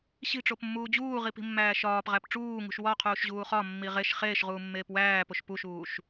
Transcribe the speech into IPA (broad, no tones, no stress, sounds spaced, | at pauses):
ɕ i̤ ʈ͡ʂ o p mː uː d͡ʑ uː ʁ i p i̤ mː æː ʃ ɒː p ʁ æ p ʈ͡ʂ uː ŋ ṳ ʃ w ɒ qʰ uː ʃ ʑ uː χ ɒ mː i ʁ e ʃ χ eː ʃ ʁ uː mː eː p w æː p o ʃ p u ʃ uː ʃ